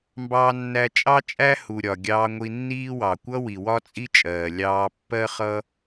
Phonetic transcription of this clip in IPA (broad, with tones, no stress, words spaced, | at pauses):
mbɑː˧nːæ˧ t͡ʃʼɑ˥t͡ʃʼæ˥hu˩ ɾʲɒ˩ ɡʲɑː˧ŋʷi˧nːiː˥wɑ˩ kʷʌ˥wi˩ wɒ˥t͡sʼi˥ t͡ʃʼɜː˩ lʲɑː˧pːɜ˥ χʌ˥